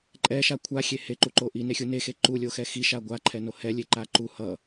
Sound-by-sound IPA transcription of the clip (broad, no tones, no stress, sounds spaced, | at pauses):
ǃʼ ɛ ʃ a kʷʰ a xʲ e h e ǃ u ǃ o ʔ i n e xʲ u n e x e ǃ u lʲ o x ɛ x i ʃ a ɡʷ a ǃʰ ɛ n o h ɛ lʲ e ǃ a ǃ u h ʌ